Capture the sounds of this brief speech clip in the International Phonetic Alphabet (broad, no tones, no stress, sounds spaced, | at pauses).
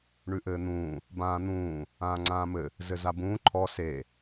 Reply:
ɳ ʉ ʔ ɘː n̪ ũː | b ãː n̪ ũː | ãː ŋ͡ǀ ãː m ɘ | z ɘ z a b ũː ǃʰ ɔ s e